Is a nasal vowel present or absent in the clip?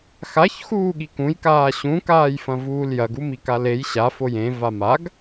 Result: present